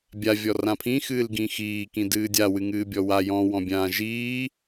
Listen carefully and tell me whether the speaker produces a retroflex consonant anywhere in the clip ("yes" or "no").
no